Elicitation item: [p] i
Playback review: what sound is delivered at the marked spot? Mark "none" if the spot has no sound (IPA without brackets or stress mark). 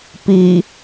p